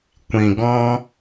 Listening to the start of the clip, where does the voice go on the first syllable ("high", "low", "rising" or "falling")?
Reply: low